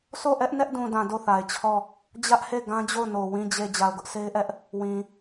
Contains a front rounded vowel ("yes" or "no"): no